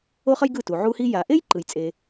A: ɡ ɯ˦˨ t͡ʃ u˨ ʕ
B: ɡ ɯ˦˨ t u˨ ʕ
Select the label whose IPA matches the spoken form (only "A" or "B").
B